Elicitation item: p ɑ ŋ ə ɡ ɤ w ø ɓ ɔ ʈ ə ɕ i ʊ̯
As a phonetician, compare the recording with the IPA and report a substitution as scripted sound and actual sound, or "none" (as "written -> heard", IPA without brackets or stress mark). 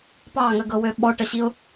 none